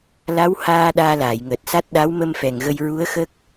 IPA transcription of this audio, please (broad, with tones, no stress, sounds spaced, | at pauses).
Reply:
l a˧˥ w h aː˧ ɗ aː˧ l aː˨˩˨ j ŋ əː˨˩ t̚ s a˦˥ t̚ ɗ a˧˥ w m ə˧ m f ɛ˨˩ ŋ ɣ ə˧ j ɹ u˧˥ ə̯ x ə˦˥ k̚